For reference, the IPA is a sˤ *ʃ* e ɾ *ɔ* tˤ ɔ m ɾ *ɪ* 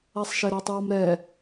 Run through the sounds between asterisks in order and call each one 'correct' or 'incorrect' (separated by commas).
correct, correct, incorrect